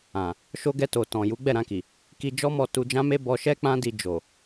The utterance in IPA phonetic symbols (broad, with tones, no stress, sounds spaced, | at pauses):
ã˨ | ʃ o˧ ɡ ɛ˧ t o˨ t ɔ̃˨ j u˨˦ ɡ͡b ɛ˦˨ ɾ ã˧ k i˨ | k i˧ d͡ʒ ɔ˦ m ɔ˧ t u˧ d͡ʒ ã˦ m e˦ b ɔ˧ ʃ ɛ˦ k͡p ã˦ d i˧ d͡ʒ o˨